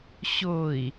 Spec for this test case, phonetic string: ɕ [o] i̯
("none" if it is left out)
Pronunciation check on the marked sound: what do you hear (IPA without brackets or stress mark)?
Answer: o